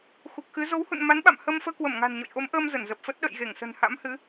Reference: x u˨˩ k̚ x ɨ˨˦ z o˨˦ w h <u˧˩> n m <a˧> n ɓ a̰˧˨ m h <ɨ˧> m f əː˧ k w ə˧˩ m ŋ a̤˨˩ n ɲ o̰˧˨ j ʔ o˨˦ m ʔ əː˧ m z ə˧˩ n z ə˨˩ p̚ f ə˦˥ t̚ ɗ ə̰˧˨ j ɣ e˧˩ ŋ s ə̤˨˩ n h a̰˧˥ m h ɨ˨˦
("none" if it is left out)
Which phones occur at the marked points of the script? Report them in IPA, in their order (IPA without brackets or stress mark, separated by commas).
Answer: ṵ˧˨, a˨˦, ə˧